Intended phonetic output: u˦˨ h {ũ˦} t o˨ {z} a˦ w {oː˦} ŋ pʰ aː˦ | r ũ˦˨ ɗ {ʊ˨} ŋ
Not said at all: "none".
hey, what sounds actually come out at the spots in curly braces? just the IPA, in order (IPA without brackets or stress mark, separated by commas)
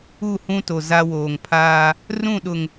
ũ˦, z, oː˨, ʊ˨